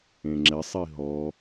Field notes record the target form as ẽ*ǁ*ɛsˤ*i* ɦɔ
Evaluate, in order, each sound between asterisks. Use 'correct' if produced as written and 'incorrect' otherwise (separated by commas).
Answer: incorrect, correct